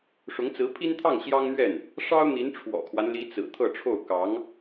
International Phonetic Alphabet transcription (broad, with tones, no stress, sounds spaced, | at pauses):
ʂ ʊ˧˥ ŋ t͡s ɹ̩˧˥ pʰ i˥ n t̪ʰ ɑ˥˩ ŋ ɕ j ɑ˥ ŋ n̪ ɥ ɛ˥˩ n | ʂ ɑ˥ ʊ̯ n̪ i˧˥ n ʈ͡ʂʰ w ɔ̰˨˩ kʰ w a˦ n l i˧˥ t͡s ɹ̩˨˩ t̪ʰ ɤ˥˧ ʈ͡ʂʰ o˥˩ ʊ̯ k ɑ˧˥ ŋ